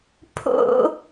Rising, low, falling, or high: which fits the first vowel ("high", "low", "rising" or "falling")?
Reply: high